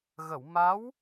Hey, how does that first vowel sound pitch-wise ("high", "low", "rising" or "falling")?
low